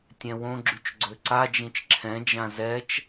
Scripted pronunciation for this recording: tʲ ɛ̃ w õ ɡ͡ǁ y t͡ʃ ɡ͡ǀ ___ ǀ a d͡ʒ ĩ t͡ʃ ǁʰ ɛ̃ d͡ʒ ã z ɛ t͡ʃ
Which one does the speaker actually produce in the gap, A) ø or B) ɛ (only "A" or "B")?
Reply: A